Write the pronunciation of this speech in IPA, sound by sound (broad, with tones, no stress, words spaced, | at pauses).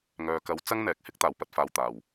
ŋœː˨kɐ˨˧w t͡sɐ˥ŋn̪ɛː˨˥k̚ hɪ˥k̚t̪aː˨˩wpɐ˧t̚faː˨w t̪aː˨˩w